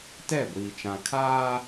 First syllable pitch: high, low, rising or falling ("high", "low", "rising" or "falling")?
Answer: falling